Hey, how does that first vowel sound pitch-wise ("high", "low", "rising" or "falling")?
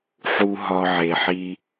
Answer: low